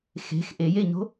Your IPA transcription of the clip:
x e̤ x ʔ e j e ɲ o̤

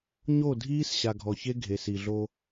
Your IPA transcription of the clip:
ɲ o˦˨ dʱ iː˦ s ɕ a˨ ɡʱ ɔ˨ ç e˦ ɡʱ e˨ s i˨ ɮ o˦

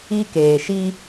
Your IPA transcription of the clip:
i˦ k eː˨ ʃ i˦

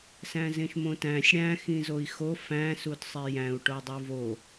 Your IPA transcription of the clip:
s æ̃ z ẽ ʃ m õ t æ̃ sʲ ɽ æ̃ x ĩ z o i̯ x o f æ̃ s u d sˤ e j æ̃ u̯ ʈ o dˤ u v o

